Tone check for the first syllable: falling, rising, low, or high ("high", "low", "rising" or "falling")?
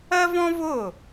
high